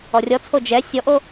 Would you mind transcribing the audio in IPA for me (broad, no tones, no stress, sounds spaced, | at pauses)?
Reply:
ɔ rʲ ɔ t͡sʰ o d͡ʒ ɛ sʲ ɔ ʔ o